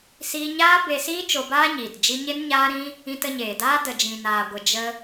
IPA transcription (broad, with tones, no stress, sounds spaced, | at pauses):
s iː˧ ɲ aː˦ b e˧ s iː˦ t͡ʃ o˧ b aː˦ ɲ iː˨ t d͡ʒ i˧ ɲ e˦ n ɲ aː˦ ɾ ĩ˦ | ĩ˧ t ə˧ ɲ eː˨ d aː˦ d ə˨ d͡ʒ ĩ˨ n aː˨ ɡʷ ə˨ d͡ʒ ə˧